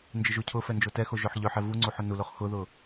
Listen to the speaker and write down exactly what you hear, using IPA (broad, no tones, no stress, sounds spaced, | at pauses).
n d͡ʒ ɪ ʒ u cʰ ʊ f ɛ n d͡ʒ o t ɛ x o ʒ œ ħ ʎ œ ħ ɛ v u ŋ͡ǀ u ħ ʊ n u l o χ x ʊ ð ʊ